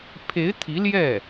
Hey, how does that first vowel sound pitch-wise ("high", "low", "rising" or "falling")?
rising